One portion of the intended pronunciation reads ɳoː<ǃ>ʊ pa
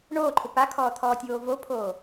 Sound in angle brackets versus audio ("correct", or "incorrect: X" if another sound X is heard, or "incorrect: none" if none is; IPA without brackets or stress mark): incorrect: ǃʰ